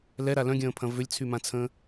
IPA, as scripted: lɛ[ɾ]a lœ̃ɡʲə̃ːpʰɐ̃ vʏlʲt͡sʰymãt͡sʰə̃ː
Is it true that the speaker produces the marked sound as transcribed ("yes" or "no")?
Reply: yes